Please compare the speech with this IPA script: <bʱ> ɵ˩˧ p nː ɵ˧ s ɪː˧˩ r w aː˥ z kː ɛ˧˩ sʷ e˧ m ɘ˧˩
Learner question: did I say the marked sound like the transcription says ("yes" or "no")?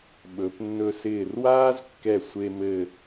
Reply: no